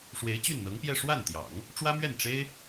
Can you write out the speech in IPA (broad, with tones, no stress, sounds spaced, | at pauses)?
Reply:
ʂ w e˧˥ ɪ̯ t͡ɕ y˥˩ n n̪ ɤ˧˥ ŋ p j ɛ˥˧ ʂ w a˥˩ n t̪ j ɑ̰˨˩˦ ŋ | ʈ͡ʂ w ä˥ m ɥ ɛ˥˩ n ʈ͡ʂ e˥ ɪ̯